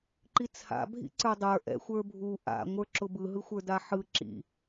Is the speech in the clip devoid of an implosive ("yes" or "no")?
yes